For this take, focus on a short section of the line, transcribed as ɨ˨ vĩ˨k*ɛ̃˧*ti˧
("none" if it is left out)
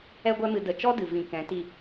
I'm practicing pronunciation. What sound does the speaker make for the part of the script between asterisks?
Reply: ɛ̃˨˦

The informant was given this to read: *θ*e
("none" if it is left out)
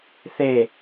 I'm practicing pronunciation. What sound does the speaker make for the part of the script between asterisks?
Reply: θ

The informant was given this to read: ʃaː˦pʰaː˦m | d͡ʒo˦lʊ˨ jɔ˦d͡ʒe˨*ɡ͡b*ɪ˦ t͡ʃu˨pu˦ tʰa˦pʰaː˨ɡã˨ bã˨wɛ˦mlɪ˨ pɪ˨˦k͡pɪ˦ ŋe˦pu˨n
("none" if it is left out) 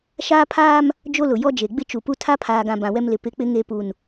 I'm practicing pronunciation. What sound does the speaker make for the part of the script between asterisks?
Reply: ɡ͡b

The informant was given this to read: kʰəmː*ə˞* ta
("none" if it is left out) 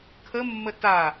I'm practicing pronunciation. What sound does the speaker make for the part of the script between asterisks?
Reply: ə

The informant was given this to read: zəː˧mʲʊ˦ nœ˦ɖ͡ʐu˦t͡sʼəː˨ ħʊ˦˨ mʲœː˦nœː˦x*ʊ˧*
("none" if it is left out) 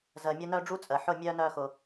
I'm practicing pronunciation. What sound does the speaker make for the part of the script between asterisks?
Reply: ʊ˧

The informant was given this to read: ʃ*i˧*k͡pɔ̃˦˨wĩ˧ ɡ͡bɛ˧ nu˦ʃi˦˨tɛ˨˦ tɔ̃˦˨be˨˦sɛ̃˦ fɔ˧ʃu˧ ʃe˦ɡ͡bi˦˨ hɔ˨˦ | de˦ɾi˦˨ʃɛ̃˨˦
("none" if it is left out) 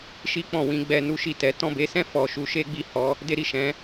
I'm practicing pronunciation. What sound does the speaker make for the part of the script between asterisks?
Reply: i˦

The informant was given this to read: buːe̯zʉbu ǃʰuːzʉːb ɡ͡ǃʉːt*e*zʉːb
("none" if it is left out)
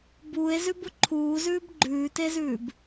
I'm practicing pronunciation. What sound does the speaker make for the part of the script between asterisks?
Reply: e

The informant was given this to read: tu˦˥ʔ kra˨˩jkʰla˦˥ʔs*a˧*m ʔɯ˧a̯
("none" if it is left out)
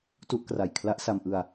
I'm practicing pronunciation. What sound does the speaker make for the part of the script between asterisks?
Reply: a˧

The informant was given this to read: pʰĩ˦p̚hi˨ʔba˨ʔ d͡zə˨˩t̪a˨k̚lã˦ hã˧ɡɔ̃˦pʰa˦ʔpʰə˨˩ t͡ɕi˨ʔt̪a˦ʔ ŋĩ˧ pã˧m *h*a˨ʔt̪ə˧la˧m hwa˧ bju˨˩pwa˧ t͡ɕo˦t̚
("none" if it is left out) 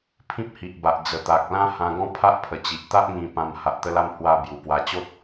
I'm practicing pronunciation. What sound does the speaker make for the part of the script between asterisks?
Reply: h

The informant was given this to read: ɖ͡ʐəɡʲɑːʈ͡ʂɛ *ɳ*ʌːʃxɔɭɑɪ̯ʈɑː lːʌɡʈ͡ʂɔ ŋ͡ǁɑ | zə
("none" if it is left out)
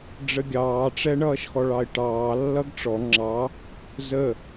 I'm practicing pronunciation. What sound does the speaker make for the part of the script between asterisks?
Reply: ɳ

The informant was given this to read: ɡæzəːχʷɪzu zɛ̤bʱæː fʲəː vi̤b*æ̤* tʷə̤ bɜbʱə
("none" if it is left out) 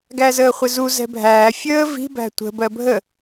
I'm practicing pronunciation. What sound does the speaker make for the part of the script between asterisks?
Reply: æ̤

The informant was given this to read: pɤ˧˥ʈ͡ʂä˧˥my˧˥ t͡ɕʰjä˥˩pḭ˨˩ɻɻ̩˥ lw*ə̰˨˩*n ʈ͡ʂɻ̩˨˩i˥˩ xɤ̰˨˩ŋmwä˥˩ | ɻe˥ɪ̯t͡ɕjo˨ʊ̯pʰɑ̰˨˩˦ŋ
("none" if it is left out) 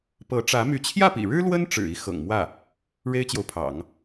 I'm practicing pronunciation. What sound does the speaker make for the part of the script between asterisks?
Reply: ə˥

